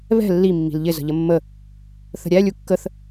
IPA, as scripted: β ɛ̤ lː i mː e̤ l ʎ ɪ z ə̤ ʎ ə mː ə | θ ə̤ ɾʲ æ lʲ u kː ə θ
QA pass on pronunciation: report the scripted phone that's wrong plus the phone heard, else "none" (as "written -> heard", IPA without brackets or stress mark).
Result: e̤ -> i̤